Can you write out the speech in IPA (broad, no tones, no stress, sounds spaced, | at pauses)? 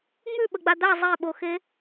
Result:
ŋ͡m ʉ ɓ ə ɡ͡b a d̪ a zˤ e ɓ o x e